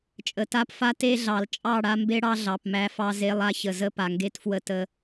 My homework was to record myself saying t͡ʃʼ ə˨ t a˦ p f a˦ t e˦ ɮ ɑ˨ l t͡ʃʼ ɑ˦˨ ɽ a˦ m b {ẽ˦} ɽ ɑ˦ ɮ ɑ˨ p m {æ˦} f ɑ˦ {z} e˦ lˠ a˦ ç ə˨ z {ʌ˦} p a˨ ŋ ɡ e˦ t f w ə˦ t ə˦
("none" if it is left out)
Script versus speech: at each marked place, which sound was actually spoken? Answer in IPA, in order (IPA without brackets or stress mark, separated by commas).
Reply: e˦, æ˦, z, ə˦